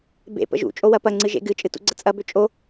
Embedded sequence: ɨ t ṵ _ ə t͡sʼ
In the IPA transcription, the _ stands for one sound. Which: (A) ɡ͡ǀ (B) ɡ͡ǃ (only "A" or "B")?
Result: A